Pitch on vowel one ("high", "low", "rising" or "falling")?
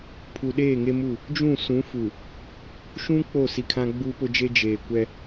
low